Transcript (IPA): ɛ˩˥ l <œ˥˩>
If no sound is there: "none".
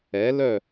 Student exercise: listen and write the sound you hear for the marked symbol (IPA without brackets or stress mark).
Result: œ˥˩